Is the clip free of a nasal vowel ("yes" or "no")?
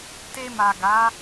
yes